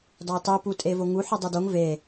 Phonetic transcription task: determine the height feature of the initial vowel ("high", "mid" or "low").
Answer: low